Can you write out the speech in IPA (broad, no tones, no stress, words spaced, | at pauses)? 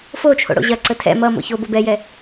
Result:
fot͡ʃʰo̰ ɽo̰ʑɐǀə tʰɛ̰ mʌ mo̰çobo bɛjɛ